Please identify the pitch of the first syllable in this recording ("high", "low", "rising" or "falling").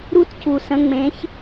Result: high